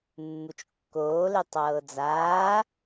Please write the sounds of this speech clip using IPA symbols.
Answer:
mːut͡ʃkːoːle tˤɤːd͡zaː

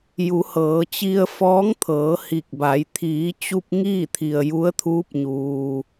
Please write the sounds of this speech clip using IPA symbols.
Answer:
ju˩˧hɤː˩˧t͡ɕi˧ə̯ fɔː˧˥ŋt̪ʰɤː˩˧ hi˧˩k̚ba˩˧j t̪ʰiː˩˧t͡ɕu˧p̚ ŋiː˥˨t̪ʰi˩ə̯ ju˧˥ə̯t̪ʰuː˧˥p̚ɲuː˩

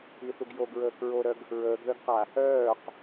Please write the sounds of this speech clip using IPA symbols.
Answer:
iθuɡ joɡɹəːk ɹoɾœɡ | ɹəːɡðœɡqa | œːq

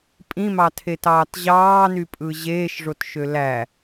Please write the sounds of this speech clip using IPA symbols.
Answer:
pʼĩmɑtʰetɑːt ʑɑːnypʼɯ ʑeːʃʐotʃø læ

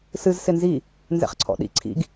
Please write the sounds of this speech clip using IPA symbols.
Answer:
sɨz sɪnzi | nzɛ̰χǀʰɔ̰ɗḭ ǀʰḭɡ

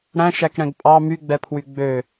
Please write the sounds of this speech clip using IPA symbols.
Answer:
ɽæ̃ʃækɽɛ̃ɡ pʼɑ myɡ͡bɛpʰwy ɡ͡bø

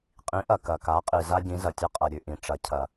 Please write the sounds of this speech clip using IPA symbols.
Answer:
qʼĩ˩˧ʔɐ˩ kɐ˩ka˩˧qʼi˩ za˧ɟĩ˩˧zɐ˩tʲɐ˧ qʼɐ˩ɾʲʉ˩ʔĩ˩ ʈ͡ʂɐ˩˧ cʰɐ˩

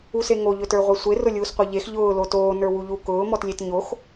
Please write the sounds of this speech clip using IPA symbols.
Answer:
useŋo ʎɵtə˞ʁʷesʷe rʊlʲuːsqʷə˞ʎex ʎʊː lotoː nə˞wuʎu kʊː mɔtlʲetɲox

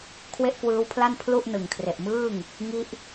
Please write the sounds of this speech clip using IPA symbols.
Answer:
kʰwe˥˩ʔkwɯː˦˥wpʰla˥˩n pʰlu˥˩ʔ nɯ˨˩ŋkʰre˨˩ʔmɯː˥˩ŋ | ŋi˦˥ʔ

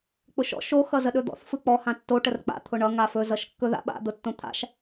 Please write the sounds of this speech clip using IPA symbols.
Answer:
k͡pʊʃɔ̰ ʃo xʌzəɗɵd̪ɔ̰θ fɯk͡pɔ hãtːo ʈərk͡pa̰ t̪ʰʊɳʌ ŋafɵ zʌʃkːɵða̰ɓa̰ d̪ʊtːõt̪ʰa̰ʃ

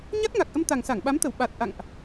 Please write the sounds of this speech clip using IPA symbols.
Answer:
ɲa˦˥t̚ŋa˨˩k̚ʔə˧m t̪a˨˩ŋsa˧˩ŋɓa˨˦mt̪ə˧˩w ɓa˨˩t̚ ʔa̰˧˨ŋʔ

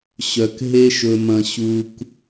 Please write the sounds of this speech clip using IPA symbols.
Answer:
ɕœ˨kɦe˧ʃɵ˨mɐ̃˨ ɕu˨k

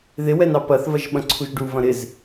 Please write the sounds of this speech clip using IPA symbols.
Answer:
ðɪwɛnɑ pɐθvɐʒ ɓɐ̃ǀʰuʒɖu vɐ̃ɾɪz

